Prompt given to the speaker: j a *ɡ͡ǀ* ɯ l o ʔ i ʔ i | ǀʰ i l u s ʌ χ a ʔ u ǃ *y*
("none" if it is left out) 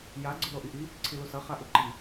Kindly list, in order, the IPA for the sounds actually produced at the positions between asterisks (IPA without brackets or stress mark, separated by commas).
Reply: ɡ͡ǀ, i